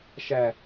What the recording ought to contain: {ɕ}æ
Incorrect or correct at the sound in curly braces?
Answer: incorrect: ʃ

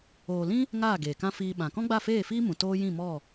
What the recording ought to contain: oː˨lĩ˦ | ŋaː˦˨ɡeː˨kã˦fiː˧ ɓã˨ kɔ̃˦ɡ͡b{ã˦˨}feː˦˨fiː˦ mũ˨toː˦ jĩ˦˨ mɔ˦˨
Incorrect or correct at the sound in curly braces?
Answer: incorrect: a˦˨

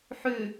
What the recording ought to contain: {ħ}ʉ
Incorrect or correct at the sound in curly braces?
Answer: correct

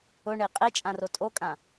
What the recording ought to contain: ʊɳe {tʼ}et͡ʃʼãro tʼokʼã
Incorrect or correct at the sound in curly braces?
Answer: incorrect: qʼ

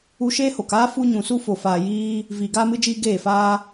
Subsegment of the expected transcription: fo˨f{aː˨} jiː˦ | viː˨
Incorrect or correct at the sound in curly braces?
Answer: correct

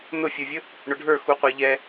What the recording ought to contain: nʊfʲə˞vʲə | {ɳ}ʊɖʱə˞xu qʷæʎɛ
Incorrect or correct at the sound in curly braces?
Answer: correct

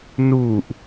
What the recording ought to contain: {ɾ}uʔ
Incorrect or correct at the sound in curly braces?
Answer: incorrect: n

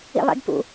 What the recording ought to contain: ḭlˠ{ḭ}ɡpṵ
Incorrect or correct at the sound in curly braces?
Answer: correct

